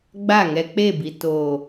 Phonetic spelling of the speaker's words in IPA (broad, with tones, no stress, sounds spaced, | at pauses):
ɡ͡b a˦˨ ŋ ɛ˧ k͡p e˦˨ b i˨ t o˨